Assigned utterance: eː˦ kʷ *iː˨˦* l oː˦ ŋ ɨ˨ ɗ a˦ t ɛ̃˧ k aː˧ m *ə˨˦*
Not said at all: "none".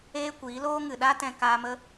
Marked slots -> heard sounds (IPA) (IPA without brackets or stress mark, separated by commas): iː˨˦, ə˦